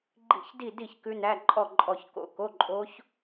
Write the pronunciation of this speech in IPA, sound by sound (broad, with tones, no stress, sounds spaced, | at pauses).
ɡ͡ǃ ḭ˦˥ ç d i˥˨ d i˥˨ ç k ʉ˦˥ n æ˧˥˧ ǃʼ ɔ˥˨ ǃʼ ɔ˥˨ ç k o̰˥˨ k o˧˥˧ ǃʼ o˦˥ ç